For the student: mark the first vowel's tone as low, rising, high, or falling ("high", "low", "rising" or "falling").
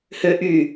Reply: high